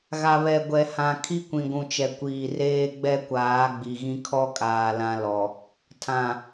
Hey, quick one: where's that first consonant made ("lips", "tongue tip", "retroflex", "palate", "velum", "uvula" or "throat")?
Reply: velum